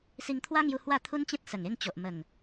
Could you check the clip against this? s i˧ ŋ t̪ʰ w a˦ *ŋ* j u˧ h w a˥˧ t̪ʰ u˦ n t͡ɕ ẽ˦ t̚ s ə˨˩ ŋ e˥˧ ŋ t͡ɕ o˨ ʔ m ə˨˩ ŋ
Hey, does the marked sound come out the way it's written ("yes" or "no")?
yes